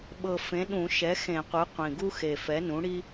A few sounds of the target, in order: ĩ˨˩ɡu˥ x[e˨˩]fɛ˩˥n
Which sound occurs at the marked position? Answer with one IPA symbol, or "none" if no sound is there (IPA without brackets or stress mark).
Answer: e˨˩